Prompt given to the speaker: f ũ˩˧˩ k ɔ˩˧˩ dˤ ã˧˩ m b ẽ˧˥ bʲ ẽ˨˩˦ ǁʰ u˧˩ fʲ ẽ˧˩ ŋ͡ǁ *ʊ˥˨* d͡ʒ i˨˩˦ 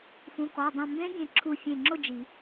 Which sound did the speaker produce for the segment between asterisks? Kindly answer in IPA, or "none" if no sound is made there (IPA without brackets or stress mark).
ʊ˥˨